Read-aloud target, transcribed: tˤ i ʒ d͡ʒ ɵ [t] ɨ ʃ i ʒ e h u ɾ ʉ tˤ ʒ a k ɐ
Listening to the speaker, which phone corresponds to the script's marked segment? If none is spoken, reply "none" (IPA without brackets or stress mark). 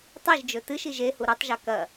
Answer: t